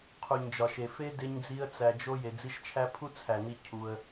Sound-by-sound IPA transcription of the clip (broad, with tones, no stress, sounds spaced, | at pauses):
qʰ u˨ ɲ d͡ʒ ɒ˨ ʃ e˨ f e˦ d e˧ ɲ d͡z i˧ ə̯ t͡s æ˧ d͡ʒ o˦ j e˨ d͡z i˧ ʃ t͡ʃʰ æ˧ pʰ u˦ t͡sʰ æ˨ n i˧ cʰ u˧ ə̯